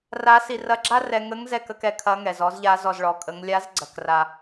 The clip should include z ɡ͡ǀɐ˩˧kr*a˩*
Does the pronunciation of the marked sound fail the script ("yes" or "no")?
yes